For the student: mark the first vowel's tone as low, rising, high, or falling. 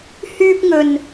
high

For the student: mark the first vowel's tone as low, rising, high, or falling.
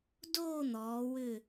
falling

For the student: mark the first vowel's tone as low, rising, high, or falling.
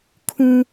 high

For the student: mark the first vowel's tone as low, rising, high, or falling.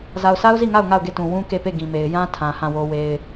low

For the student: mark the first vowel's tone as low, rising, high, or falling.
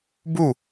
falling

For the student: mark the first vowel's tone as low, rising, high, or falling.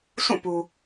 falling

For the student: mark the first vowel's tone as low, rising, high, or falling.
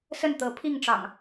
falling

